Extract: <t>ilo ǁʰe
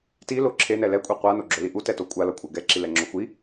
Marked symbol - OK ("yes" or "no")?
yes